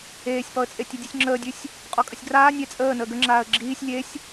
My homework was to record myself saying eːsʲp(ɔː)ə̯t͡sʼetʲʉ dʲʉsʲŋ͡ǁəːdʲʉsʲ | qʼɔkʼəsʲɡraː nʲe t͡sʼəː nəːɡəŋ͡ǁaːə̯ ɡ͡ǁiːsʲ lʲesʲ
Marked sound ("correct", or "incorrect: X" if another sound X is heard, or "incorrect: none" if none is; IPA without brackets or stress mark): incorrect: ɔ